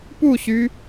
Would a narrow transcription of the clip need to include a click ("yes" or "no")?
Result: no